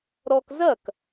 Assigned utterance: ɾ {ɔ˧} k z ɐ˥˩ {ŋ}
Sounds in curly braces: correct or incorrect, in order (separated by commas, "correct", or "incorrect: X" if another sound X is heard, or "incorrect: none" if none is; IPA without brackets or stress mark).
correct, incorrect: k